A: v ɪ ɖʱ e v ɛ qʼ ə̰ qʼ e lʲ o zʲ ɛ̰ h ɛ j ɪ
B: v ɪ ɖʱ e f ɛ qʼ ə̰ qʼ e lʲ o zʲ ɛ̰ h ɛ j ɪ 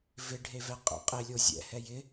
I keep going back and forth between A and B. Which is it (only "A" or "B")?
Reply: A